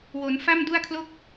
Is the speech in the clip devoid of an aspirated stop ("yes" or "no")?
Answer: no